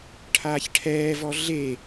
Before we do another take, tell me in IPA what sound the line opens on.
ʈʰ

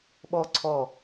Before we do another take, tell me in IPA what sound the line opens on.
ɓ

